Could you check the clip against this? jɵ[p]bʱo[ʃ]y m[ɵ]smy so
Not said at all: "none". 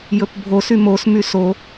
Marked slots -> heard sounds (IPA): p, s, o

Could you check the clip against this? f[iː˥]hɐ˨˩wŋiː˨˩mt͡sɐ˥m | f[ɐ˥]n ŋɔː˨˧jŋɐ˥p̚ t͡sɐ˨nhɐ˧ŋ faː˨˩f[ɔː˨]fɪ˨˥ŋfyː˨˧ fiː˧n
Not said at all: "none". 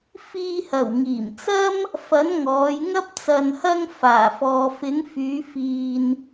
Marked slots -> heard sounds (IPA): iː˧, ɐ˨˥, ɔː˨

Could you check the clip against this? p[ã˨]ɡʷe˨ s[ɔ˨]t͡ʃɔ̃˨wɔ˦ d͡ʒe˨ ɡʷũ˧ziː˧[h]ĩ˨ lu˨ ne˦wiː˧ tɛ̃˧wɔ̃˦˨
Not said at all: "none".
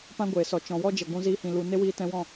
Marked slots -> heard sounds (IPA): ã˦, ɔ˨, h

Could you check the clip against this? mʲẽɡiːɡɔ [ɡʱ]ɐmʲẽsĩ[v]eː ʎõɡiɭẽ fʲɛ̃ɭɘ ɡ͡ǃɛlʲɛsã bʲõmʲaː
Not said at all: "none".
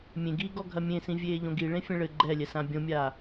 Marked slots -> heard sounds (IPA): ɡʱ, vʲ

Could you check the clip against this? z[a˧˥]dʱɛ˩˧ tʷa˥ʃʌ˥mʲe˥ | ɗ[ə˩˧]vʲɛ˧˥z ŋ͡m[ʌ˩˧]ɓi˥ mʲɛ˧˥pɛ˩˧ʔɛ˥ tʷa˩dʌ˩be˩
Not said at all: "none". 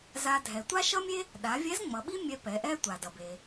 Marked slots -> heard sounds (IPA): a˧, a˩˧, ʌ˩˧

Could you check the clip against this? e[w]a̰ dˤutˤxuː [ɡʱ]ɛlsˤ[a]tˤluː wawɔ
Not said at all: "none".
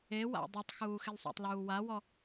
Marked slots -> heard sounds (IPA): w, x, a̰

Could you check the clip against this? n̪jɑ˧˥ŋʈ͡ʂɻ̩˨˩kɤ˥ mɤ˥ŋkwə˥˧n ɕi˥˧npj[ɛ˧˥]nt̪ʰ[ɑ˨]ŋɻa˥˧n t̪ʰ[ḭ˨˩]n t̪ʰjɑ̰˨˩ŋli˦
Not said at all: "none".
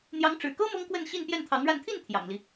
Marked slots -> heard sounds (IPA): ɛ˥˩, ɑ˧˥, i˥˩

